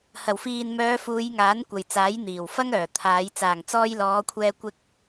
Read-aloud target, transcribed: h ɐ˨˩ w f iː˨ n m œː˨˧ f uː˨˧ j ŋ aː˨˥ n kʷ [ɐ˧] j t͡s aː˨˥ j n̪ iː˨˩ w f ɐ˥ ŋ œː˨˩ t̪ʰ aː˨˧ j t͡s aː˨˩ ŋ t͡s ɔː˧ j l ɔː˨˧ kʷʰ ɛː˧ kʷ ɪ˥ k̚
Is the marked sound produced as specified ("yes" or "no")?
no